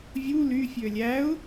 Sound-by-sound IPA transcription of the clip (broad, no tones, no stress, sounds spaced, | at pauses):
vʲ u l y fʲ ø lʲ æ ʊ̯